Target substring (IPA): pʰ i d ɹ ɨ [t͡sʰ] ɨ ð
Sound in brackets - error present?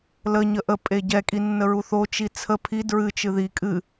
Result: yes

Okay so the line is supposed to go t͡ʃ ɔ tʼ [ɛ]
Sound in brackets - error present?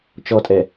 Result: no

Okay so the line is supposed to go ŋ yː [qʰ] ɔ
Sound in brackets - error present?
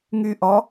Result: yes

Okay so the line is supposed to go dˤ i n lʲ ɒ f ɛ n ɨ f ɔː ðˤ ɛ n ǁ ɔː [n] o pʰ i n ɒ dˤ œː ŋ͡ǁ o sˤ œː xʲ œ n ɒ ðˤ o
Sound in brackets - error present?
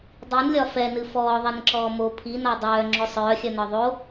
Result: yes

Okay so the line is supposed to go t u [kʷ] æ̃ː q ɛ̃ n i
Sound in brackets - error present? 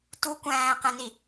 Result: no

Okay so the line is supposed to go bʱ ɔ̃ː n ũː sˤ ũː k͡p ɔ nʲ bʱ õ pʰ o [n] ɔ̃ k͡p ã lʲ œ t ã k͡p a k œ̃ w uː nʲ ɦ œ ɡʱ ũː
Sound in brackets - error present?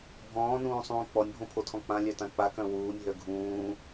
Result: yes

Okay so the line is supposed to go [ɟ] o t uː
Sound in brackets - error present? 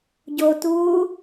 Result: no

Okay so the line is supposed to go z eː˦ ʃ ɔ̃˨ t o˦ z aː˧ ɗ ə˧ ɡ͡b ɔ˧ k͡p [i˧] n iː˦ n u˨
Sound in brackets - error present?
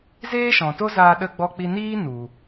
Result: no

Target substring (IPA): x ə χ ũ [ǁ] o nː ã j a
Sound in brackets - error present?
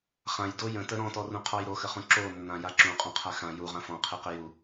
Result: no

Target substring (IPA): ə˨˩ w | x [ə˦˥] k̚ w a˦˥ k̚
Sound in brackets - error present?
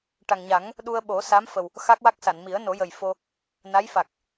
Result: yes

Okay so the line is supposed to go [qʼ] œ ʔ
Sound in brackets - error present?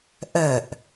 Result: yes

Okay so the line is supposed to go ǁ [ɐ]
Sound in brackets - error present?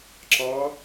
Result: yes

